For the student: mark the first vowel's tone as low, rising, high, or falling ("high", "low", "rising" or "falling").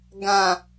low